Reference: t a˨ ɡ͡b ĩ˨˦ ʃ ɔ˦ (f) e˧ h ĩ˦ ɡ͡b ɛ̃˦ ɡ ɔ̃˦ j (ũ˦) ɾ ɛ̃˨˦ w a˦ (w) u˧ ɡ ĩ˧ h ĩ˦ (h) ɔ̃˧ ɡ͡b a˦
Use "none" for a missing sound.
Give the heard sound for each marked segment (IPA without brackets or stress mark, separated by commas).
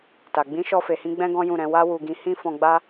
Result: f, ũ˦˨, w, f